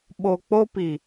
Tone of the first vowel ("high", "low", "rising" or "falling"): low